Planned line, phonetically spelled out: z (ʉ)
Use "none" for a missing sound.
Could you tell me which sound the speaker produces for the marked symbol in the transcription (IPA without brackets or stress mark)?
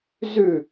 ʉ